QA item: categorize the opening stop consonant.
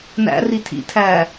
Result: aspirated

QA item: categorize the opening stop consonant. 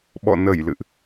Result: implosive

